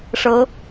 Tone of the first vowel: rising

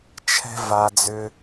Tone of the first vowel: high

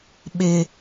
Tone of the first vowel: high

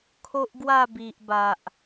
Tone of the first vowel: high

